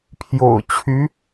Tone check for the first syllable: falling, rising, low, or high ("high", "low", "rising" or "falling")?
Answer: low